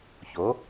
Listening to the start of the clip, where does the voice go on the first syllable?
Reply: rising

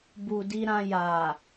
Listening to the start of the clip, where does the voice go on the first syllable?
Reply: low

